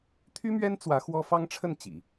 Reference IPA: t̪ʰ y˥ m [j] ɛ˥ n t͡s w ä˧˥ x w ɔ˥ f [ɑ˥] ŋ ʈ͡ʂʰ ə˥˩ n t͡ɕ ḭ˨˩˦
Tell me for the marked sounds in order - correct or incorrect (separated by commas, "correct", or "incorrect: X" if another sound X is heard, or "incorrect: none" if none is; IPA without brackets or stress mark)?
incorrect: ɥ, correct